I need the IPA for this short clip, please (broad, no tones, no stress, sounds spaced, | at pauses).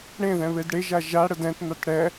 ɽ ẽ ð ɛ̃ β e d ɽ e ʒ a ʒ a ɽ ə d ɛ̃ t n̪ a t ɽ ɛ